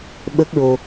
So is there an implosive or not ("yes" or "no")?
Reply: yes